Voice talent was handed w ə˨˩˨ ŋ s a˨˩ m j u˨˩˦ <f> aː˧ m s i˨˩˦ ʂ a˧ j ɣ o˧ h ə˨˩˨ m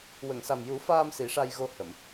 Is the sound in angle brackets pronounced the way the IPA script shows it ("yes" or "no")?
yes